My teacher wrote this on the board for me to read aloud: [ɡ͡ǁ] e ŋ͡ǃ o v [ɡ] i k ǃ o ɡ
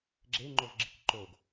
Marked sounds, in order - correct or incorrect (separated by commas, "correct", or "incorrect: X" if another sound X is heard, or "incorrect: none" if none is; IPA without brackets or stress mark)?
correct, incorrect: ɡ͡ǁ